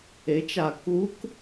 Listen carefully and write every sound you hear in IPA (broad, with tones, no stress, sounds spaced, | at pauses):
e˩˥ t͡ʃ a˨˩ k u˧˥ k